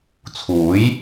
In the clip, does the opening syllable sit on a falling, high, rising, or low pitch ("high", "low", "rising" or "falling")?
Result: rising